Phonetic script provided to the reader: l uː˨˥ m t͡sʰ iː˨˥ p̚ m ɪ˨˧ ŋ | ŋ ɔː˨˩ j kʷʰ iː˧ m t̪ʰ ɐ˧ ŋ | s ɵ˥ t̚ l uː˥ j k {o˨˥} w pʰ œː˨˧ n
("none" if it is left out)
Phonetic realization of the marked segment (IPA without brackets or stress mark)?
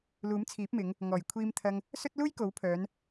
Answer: o˨˥